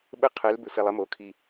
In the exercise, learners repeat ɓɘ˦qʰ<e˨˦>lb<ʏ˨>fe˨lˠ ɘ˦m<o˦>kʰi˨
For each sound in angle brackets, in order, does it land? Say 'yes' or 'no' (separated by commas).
yes, yes, no